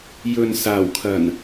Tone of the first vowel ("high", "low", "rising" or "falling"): low